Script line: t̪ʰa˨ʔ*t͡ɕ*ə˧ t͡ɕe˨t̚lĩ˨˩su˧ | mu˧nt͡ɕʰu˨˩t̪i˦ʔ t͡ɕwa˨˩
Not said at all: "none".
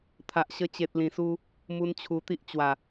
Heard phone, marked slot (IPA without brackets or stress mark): ɕ